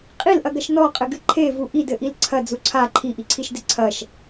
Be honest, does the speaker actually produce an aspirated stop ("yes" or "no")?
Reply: yes